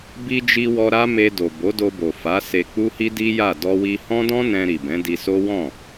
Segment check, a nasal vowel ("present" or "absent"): present